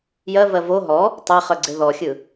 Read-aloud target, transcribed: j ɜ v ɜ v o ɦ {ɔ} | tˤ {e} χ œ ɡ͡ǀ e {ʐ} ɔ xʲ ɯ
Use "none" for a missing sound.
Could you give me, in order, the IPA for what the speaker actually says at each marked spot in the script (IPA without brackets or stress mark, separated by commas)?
ɔ, e, ð